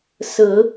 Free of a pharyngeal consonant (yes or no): yes